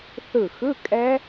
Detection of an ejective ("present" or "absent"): present